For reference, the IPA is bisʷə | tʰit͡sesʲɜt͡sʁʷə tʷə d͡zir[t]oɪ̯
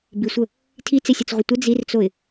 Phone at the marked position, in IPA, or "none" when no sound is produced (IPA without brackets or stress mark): t͡s